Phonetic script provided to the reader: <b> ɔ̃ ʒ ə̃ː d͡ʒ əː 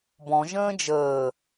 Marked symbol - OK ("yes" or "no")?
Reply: yes